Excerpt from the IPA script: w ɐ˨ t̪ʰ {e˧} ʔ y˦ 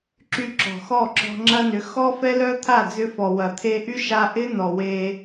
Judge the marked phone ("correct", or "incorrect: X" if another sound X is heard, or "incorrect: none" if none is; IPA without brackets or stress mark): correct